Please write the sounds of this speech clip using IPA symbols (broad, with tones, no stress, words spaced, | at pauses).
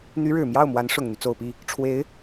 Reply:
n̪y˧˥ɻɻ̩˨˩ mjɑ˥˩ʊ̯mwa˧˥n ʂʊ˨˩ŋn̪y˦ t͡so˨˩ʊ̯pi˥˩ | ʈ͡ʂʰwe˧˥ɪ̯